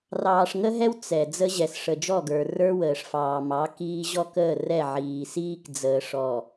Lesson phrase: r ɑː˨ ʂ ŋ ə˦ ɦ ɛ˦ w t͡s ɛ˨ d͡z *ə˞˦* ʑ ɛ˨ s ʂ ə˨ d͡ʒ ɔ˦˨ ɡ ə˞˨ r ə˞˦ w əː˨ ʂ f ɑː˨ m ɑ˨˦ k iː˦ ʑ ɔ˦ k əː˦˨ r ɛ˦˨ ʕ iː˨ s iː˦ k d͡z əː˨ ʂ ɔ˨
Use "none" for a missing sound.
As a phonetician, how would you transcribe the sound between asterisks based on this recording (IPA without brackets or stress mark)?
ə˦